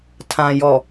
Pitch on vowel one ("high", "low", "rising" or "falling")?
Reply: low